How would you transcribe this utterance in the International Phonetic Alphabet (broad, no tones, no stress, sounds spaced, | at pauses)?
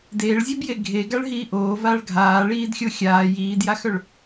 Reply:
d eː ɭ zʲ œ b j e ɡʱ e ɡ a ɭ ɦ iː ʔ oː v aː ɭ ɡʱ aː ɭ iː d xʲ o xʲ aː j iː d j a x œ ɭ